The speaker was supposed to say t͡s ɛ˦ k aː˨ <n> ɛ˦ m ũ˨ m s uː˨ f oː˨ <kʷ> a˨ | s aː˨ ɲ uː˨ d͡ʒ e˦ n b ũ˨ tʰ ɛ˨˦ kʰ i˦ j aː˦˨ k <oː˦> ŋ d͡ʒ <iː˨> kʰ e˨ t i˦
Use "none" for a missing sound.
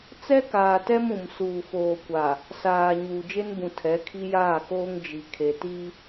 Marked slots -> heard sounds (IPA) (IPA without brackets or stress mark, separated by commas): t, kʷ, oː˦, i˨